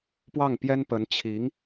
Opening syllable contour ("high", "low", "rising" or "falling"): falling